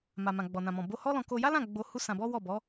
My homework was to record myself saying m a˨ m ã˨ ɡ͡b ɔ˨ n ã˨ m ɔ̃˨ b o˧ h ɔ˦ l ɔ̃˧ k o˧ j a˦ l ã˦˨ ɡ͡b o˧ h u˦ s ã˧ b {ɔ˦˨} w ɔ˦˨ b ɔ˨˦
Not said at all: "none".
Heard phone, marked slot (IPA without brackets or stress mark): ɔ˦